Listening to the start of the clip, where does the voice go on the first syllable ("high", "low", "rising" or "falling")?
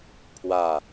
falling